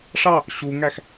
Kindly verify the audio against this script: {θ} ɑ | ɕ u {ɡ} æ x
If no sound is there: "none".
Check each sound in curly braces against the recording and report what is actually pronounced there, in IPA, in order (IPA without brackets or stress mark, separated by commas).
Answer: ʂ, ŋ